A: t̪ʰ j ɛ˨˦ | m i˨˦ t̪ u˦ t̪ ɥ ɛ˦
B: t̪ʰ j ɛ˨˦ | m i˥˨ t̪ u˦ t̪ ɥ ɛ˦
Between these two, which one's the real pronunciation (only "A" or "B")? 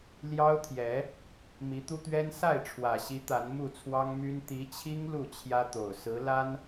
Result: A